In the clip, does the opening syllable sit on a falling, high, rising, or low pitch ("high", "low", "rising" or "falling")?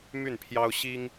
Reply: falling